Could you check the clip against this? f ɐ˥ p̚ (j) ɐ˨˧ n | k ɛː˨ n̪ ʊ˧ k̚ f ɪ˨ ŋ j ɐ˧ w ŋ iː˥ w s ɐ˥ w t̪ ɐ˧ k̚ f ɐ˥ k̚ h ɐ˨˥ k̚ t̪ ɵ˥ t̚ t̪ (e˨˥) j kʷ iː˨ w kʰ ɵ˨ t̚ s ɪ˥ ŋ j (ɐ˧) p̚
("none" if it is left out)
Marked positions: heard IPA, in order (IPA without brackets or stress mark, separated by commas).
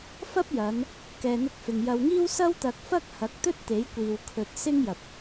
j, e˨˥, ɐ˨